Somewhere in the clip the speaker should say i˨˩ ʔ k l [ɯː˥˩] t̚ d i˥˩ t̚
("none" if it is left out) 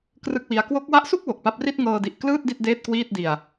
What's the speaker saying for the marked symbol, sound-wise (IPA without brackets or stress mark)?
ɯː˥˩